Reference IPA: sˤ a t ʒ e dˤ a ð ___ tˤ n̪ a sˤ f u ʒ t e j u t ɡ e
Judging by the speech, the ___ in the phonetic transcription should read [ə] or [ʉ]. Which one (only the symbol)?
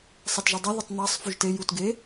ə